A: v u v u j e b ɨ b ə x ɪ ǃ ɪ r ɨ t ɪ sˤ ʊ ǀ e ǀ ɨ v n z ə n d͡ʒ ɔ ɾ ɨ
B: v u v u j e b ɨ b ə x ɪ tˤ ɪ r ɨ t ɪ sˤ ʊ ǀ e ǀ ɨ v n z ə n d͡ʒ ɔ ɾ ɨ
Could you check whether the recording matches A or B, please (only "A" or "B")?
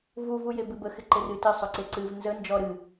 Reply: A